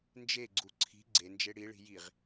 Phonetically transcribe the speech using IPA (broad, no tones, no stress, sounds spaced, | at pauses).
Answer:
n d͡ʒ e ɡ͡ǀ u ǀʰ i̤ ɡ͡ǀ e n d͡ʒ e ɽ i ɭ i̤ j i ʁ